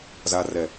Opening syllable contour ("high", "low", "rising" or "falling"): low